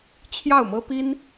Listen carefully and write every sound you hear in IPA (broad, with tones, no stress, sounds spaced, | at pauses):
t͡ɕʰ j ɑ˥˩ ʊ̯ m ɤ˥ p i˥ n